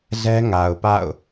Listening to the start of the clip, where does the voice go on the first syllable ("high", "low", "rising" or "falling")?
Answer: high